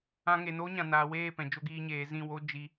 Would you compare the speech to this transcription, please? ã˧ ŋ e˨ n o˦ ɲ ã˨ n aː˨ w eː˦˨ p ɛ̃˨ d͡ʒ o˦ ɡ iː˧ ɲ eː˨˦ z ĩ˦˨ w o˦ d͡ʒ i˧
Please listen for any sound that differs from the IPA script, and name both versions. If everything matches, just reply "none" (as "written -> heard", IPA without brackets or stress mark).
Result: none